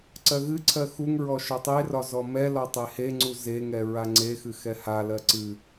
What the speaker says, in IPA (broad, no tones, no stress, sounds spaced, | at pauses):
ǀ ɜ ɣ ɨ ǀʰ ɜ x u ŋ ɹ ɔ ʃ ɒ tˤ e r ɒ z ɔ m ɛ l ɒ tˤ e h e ŋ͡ǀ u z e ŋ ɛ ɹ a ŋ͡ǀ e x ɨ x ɛ h a l ɜ ǀ ɨ